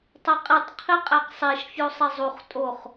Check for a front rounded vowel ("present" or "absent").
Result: absent